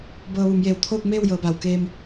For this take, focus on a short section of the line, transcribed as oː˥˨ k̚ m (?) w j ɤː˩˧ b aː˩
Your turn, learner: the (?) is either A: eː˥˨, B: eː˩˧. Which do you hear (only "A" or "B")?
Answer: A